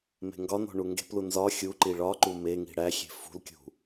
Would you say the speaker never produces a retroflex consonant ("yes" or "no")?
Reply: no